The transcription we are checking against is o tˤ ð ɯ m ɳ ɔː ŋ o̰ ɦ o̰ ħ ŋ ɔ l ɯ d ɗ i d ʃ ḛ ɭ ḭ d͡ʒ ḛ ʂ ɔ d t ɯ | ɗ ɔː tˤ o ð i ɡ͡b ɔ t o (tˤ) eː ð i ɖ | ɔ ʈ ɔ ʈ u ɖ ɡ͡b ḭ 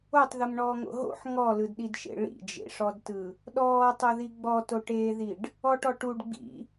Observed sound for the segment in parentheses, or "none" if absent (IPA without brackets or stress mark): ʈ